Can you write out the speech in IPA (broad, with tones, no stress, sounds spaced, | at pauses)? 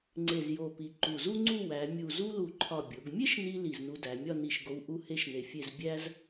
ŋ͡ǀ e˧˩ z j o˧˩ p i˩˧ ǃ u˧˩ z u˥ ŋ͡ǀ u˥˧ w æ˩˧ mʲ u˧˩ z u˥ l u˧˩ ǃʰ ɒ˧˩ bʲ o˩˧ ɡ mʲ e˥ ʃ n i˧ l i˧˩ z n u˧ d æ˩˧ mʲ ɒ˥˧ n i˧˩ ʃ ɡ o˧ w ʔ u˥˧ h e˥ ʃ n e˧˩ fʲ e˥˧ z bʲ æ˥ z